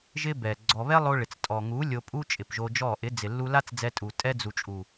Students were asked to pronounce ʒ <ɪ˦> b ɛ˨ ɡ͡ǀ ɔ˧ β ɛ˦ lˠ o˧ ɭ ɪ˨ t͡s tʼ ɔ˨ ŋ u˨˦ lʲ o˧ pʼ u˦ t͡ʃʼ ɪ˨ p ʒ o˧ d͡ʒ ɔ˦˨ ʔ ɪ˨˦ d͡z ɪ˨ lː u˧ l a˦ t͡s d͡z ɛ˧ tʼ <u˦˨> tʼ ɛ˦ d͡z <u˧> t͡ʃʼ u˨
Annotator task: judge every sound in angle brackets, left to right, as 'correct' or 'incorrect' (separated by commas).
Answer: correct, incorrect, incorrect